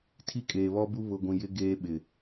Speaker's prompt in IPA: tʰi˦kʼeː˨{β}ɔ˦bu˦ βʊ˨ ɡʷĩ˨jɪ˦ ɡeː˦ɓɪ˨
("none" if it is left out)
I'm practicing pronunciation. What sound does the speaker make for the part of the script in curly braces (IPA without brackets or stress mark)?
β